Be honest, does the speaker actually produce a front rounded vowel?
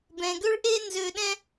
yes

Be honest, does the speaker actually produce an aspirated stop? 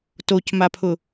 yes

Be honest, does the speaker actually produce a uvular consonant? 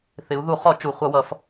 yes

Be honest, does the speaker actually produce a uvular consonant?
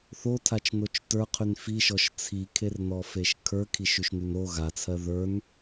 yes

